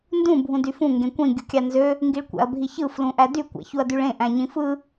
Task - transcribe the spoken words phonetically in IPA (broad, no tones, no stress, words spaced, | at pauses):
ndũ bʱũdyfũ ŋɡẽkʷĩ ɡʲukʲɑnzø | ŋɡiɭkʷæ̰ɐ̯bʱiçɯ flũʔædy kʷæ̰çuɐ̯dyɭẽ ʔæ̃ɲĩfɯ